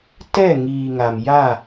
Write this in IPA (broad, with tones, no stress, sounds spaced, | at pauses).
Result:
t ɛ˦˨ ŋ iː˨ ŋ a˨ m j a˦˨